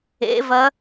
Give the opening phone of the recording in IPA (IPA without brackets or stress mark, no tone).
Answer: ḛ